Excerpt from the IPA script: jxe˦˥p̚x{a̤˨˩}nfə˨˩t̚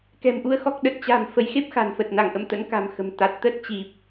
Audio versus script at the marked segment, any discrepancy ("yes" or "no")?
no